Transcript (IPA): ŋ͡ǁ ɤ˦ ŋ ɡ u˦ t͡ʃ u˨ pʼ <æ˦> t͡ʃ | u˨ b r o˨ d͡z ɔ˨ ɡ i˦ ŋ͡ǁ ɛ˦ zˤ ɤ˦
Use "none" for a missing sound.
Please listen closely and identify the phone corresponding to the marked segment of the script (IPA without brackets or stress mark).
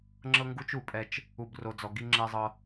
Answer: ɛ˦